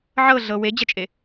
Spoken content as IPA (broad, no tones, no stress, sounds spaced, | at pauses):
ʕ ɤ ɮ ɤ w e d͡ʑ ɐ t͡ʃʼ e